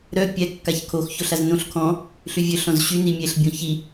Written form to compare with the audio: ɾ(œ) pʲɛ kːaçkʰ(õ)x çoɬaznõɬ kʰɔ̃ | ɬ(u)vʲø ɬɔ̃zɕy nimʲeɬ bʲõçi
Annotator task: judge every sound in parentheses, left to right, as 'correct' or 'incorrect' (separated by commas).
correct, incorrect, incorrect